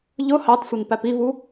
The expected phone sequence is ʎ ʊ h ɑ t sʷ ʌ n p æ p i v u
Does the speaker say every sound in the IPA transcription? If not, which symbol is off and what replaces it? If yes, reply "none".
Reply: none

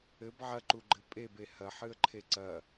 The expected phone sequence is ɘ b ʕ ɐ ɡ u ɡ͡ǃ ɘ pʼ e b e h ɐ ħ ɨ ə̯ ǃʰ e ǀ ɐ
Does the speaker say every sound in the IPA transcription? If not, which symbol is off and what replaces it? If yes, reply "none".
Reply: ɡ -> ǃ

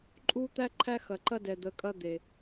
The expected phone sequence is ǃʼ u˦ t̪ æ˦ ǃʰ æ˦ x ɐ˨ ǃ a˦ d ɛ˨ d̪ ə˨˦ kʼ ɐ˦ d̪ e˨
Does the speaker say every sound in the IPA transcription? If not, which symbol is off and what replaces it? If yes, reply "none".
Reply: a˦ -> ɐ˦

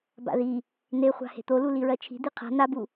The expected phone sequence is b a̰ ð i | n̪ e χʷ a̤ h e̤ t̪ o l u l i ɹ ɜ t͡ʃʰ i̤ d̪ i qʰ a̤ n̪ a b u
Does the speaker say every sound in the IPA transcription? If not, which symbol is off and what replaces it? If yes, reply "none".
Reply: none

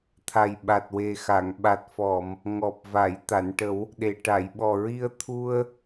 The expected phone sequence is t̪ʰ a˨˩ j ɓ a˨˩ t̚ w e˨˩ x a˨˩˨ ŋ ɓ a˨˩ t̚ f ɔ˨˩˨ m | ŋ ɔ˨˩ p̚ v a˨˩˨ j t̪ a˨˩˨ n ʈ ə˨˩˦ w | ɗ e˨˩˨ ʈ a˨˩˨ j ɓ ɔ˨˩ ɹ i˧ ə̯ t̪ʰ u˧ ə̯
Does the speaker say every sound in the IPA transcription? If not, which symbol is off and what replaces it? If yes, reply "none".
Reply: none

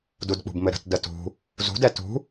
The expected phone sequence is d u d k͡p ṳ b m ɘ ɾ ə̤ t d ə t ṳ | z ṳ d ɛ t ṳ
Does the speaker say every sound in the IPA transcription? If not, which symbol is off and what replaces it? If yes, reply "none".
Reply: none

